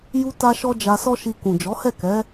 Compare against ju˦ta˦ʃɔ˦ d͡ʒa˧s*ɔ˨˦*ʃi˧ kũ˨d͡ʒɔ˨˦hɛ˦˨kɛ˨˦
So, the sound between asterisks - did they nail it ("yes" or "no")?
no